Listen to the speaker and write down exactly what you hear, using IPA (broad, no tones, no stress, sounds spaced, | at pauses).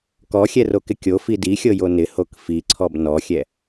k ɔ xʲ ɛ r o k ɪ kʲ o f i d i xʲ ɤ j o n ɪ h o k f i ǀʰ ɔ b n ɔ xʲ ɛ